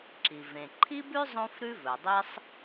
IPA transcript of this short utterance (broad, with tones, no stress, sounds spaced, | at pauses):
ǁ i˩ v ẽ˩ ǃʰ i˥ b ʉ˥ zˤ õ˥ f ɾ ʉ˥ v ɵ˩ dˤ i˥ sˤ